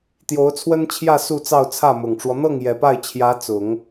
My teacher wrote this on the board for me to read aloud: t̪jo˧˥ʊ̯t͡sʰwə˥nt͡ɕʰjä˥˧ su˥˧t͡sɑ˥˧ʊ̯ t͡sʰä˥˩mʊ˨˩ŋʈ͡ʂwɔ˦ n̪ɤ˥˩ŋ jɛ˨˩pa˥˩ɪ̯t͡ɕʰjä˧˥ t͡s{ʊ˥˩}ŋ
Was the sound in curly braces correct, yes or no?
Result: no